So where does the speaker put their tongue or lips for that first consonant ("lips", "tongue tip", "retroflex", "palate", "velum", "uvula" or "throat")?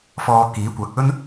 lips